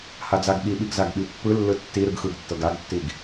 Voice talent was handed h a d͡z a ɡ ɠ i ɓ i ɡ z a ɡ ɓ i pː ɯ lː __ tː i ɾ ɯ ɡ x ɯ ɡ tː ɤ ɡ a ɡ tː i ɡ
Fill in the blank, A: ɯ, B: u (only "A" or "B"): A